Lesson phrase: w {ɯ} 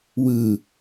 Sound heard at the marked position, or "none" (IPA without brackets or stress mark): ɯ